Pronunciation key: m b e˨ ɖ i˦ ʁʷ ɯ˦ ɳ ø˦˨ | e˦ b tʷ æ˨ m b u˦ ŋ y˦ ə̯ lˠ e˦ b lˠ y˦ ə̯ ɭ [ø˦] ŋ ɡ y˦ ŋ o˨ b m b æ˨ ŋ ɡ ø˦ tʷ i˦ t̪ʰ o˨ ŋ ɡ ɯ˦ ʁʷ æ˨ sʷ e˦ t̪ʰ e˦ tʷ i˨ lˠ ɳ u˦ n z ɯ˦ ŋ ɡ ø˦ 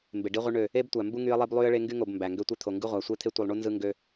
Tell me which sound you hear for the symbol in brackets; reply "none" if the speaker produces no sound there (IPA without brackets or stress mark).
e˦